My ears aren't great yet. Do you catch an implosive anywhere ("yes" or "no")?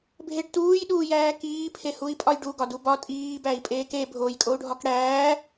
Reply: yes